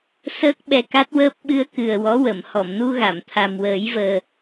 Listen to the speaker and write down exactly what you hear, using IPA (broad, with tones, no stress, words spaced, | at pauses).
səː˦˥k̚ɓɛ˧ka˦˥t̚wəː˦˥p̚ ɓɨ˧ə̯kɨ˨˩ə̯ wɔ˧˥wə˨˩˨m hɔ˨˩˨mnu˧ɣa˨˩˨m t̪ʰa˨˩mwəː˨˩˦jvəː˨˩